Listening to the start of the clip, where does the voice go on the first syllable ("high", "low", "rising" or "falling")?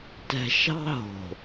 low